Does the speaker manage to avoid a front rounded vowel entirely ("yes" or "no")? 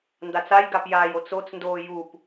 yes